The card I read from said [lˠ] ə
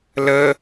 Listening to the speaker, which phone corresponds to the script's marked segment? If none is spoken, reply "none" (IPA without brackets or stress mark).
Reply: l